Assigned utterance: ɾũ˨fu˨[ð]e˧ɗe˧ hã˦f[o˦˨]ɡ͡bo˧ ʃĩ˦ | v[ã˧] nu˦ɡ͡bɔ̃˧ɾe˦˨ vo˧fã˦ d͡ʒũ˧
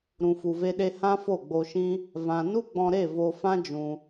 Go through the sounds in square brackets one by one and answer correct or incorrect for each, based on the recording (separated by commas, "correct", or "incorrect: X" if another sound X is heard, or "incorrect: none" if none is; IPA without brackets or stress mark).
incorrect: v, correct, correct